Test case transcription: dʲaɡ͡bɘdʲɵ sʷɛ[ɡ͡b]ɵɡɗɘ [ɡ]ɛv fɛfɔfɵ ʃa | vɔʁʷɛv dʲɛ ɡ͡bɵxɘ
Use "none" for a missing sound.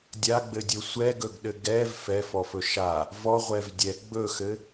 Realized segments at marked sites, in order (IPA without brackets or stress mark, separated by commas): ɡ, ɡ